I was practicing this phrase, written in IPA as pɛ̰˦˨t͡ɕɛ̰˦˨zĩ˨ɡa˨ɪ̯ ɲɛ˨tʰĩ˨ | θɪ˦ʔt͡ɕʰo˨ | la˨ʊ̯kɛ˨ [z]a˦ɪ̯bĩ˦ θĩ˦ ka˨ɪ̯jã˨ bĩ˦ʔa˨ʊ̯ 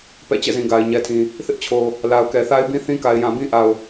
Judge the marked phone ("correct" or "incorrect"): incorrect